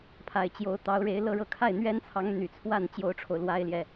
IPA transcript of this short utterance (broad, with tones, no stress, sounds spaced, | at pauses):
pʰ a˨˩ ɪ̯ t͡ɕ j o˧˥ ʊ̯ t̪ ɑ˧˥ ʊ̯ ɻ e˧˥ ɪ̯ l ɤ˥˧ ɻ ɤ˥˧ kʰ a˥˩ ɪ̯ n̪ ɥ ɛ˥ n t͡sʰ ɑ˧˥ ŋ n̪ y˨˩ t͡sʰ w a˥˩ n t͡ɕ j o˥ ʊ̯ ʈ͡ʂʰ o˨ ʊ̯ l w a˥ ɪ̯ l j ɛ˨